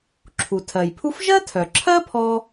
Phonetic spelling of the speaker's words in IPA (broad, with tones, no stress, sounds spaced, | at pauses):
ǁʰ u˩ tʰ ɜ˩ j pʰ u˥ f ʒ ɜ˥ tʰ œ˩ ǁʰ ɜ˥ pʰ ɔ˥